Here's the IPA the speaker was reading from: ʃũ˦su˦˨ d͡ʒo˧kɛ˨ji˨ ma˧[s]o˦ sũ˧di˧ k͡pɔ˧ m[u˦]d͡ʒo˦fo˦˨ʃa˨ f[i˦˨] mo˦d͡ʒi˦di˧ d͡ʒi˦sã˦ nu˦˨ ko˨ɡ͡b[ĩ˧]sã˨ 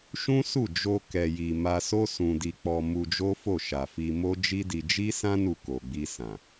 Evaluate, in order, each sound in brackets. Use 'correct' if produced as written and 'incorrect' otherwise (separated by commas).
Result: correct, incorrect, incorrect, incorrect